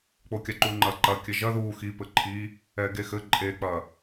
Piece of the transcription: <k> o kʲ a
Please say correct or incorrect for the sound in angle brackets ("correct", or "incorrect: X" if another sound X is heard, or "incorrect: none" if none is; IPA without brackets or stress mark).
incorrect: k͡p